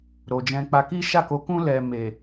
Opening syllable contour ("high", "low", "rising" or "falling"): low